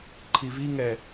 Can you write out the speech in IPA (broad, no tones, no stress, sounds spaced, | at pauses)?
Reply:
ǃʰ i v i ŋ ɛ